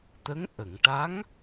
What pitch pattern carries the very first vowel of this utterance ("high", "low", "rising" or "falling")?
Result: rising